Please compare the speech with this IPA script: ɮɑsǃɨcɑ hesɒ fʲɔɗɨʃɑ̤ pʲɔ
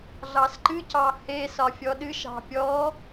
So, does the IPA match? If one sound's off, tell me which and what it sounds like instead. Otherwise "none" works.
none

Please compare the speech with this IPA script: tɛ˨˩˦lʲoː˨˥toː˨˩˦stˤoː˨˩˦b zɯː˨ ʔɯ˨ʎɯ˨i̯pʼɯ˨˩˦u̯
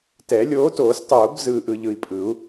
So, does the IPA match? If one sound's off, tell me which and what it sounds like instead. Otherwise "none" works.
none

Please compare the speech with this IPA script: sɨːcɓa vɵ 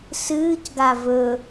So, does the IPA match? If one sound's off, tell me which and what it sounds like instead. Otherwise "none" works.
ɓ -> ɡ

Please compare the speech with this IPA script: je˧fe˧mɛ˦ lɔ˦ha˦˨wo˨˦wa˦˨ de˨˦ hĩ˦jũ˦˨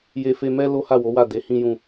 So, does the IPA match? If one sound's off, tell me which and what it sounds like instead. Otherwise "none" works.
ɔ˦ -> o˦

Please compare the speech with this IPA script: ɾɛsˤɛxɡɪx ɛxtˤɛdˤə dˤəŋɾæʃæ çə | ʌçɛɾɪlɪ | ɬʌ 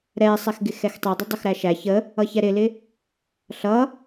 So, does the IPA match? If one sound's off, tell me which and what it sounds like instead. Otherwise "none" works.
ŋ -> x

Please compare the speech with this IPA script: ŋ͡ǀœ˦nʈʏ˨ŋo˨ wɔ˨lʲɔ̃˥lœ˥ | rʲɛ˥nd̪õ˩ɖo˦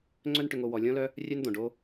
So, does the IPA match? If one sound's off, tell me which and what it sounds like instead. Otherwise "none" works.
ɛ˥ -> œ˥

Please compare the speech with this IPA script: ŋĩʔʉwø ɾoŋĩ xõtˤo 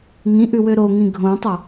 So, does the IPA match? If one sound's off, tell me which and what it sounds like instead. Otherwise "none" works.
x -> ɡʱ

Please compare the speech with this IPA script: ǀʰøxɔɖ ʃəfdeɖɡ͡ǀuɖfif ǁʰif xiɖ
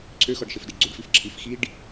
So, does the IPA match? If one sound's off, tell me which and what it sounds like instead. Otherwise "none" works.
none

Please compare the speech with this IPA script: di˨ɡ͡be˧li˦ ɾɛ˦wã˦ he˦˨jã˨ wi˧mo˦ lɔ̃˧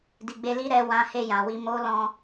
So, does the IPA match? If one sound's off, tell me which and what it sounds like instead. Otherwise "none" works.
none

